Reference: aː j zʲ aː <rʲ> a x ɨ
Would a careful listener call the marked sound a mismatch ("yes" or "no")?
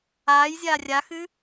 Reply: no